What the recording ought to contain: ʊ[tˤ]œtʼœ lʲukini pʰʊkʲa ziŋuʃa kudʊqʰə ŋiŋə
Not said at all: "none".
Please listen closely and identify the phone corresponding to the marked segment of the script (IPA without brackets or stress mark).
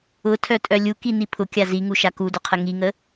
tʰ